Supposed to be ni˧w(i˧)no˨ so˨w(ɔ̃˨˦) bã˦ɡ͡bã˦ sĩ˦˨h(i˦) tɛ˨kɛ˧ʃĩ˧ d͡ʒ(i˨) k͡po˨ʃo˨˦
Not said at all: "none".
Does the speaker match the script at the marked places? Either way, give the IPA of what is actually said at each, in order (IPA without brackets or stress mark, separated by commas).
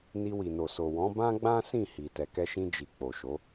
i˨, ɔ̃˨˦, i˨, i˨